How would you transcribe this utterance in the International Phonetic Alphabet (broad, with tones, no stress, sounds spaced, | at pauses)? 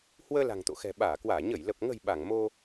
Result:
h w əː˧ l a̤˨˩ ŋ t̪ o̰˧˨ x ɛ̤˨˩ ɓ aː˧˩ k w aː˧˩ ɲ ə˧˩ j l ə˨˩ p̚ ŋ ə̤˨˩ j ɓ a˧˩ ŋ m o˧